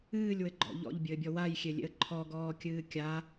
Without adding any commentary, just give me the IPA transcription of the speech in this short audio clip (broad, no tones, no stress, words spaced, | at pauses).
ɨːlʲwɘɡ͡ǃɔ̰ ʎɔ̰ʎbʲɘːbʲɔ wajxʲelʲḛə̯ ǃʰɔɡɔːkʲɨː kʲa